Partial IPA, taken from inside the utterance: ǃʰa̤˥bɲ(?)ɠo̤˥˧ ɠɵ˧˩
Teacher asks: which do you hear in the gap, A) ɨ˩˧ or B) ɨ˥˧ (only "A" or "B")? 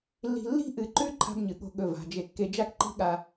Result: A